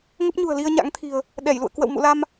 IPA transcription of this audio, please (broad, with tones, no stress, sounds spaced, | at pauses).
ŋ ə˦˥ p̚ ɲ ṳ˨˩ ə̯ l i˧ ə̯ ɲ a̰˧˥ ŋ t̪ʰ i̤˨˩ ə̯ | ɗ ɛ˧˩ j l ṵ˧˨ ə̯ k w ə̰˧˨ w m ṵ˧˨ l a˧ m